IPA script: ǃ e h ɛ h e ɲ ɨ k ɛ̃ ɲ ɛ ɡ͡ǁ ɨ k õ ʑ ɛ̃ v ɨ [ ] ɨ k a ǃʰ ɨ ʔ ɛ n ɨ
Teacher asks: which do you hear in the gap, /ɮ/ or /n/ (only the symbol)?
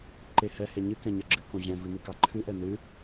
n